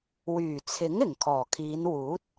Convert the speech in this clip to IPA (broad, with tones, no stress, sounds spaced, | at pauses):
w yː˨˩ t͡sʰ ɪ˨˥ ŋ ɪ˨˩ ŋ kʰ ɔː˨˩ kʰ iː˨˧ n w uː˨˥ t̚